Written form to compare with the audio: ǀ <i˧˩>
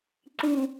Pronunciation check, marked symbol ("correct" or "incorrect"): incorrect